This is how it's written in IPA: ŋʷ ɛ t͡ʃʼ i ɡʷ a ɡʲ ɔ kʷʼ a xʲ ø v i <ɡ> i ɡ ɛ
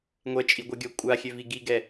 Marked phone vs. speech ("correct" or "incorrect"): correct